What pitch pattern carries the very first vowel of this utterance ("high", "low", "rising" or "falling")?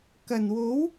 low